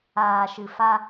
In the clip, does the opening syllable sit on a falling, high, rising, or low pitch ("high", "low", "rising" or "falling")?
low